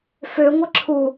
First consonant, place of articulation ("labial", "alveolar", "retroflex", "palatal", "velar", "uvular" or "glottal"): labial